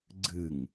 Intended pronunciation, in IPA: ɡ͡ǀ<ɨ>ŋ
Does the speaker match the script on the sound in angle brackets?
yes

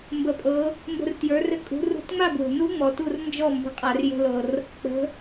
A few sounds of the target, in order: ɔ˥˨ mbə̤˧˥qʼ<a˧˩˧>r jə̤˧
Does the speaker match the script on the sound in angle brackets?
yes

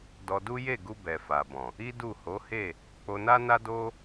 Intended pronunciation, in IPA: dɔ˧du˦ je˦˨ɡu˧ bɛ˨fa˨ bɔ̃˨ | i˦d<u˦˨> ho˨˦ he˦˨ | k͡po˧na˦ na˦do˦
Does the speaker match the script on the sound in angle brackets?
yes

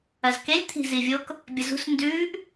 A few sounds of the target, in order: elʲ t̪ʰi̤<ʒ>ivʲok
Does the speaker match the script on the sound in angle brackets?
no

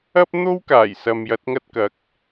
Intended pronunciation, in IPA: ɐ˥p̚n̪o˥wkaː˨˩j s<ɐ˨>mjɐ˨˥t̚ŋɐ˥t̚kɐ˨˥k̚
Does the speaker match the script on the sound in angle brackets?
yes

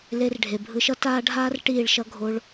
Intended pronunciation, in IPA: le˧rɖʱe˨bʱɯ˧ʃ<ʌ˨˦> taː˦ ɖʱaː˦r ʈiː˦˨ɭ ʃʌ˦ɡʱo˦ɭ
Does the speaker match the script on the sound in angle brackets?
no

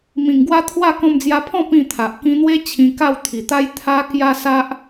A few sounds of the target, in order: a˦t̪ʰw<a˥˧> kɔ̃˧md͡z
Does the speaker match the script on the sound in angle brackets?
yes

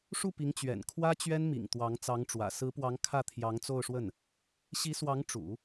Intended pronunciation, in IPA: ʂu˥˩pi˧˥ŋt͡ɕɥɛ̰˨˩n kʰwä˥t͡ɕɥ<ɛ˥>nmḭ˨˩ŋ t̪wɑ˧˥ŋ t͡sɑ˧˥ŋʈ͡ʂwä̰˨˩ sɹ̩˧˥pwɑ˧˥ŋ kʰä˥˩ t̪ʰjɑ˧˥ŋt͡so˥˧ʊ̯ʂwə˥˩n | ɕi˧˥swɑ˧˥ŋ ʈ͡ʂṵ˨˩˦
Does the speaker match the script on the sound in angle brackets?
yes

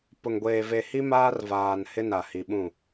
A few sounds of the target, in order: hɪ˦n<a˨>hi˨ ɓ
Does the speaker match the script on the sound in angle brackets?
yes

